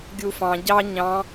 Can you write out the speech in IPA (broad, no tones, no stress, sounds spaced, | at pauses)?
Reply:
ɡʲ u f ɑ̃ ɟ ɑ ɲ ɑ̃